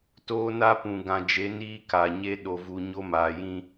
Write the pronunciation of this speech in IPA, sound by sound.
t oː˦ n a˦ p ũ˨ ɡ ã˨ d͡ʒ e˨˦ n iː˦ k a˨ ɲ e˦ ɗ o˨ v u˨ ɲ o˦ m aː˨ j ĩ˦

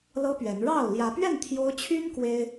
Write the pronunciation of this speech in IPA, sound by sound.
l ɤ˦ p ɥ ɛ˨˦ n ɻ ɑ˥˨ ʊ̯ l j ä˨˦ p ɥ ɛ˥˨ n t̪ʰ j o˦ ʊ̯ t͡ɕʰ y˦ n k w e˦ ɪ̯

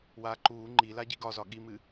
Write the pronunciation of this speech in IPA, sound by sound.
w aː ǃ uː ŋ͡ǃ i l a ɟ i ɡ ɒ z ɒ ɠ i m ɨ

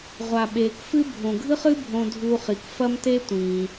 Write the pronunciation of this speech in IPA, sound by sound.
ʁʷ a˩ ɓ eː˩ k f ɨ˥ bʱ õ˩ ɡʱ ɨ˥ χ ɨ˥ bʱ õ˧ dʱ uː˧ χ i˩ k f ɐ˥ m t e˥ tʷ ĩː˩

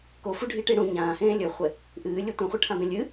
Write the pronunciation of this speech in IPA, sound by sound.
k o f u ɖʱ i ʈ i ɽ ũ ɲ ãː h ẽː lʲ ɵ χʷ e | ʔ ɨː lʲ ɵ tʷ ɐ̃ χʷ ɨ ʈʰ ã b ẽ lʲ ɨ

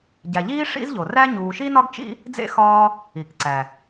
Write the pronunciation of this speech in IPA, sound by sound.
ɟ æ˨ ʎ iː˥ ʂ ḭ˥ z ʎ o˩ r æ˥ ɲ uː˨ ʃ i˥ n ɒ˥ ɡ t͡ʃ ḭ˥ | d͡z ḛ˦ x ɒː˥ | i˩ k ǀ æ˩

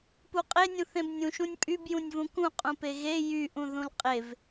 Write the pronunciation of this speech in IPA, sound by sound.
p u qʼ e nʲ ũ θ ẽ b nʲ ũ ʃ ũ nʲ pʼ y b j ũ nʲ v ũ k ũ qʼ ũ p e ɣ e j y ʔ ũ ð ũ l qʼ e v

